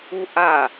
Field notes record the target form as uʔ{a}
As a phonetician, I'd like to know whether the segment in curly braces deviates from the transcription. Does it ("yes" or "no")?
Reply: no